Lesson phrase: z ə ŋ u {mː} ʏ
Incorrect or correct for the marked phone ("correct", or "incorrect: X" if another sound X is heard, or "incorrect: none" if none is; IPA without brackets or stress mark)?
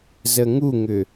incorrect: ŋ